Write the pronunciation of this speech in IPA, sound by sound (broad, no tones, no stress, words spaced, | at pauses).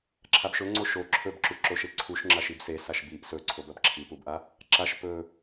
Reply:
ǁʰabʃɵŋ͡ǀo ʃo ǁʰɵbǁuǁoʃe ǀʰuʃŋ͡ǁaʃ ibse saʃbiʔ sɵǀʰobɐb ǁʰipubʔa | ǁaʃ pɵ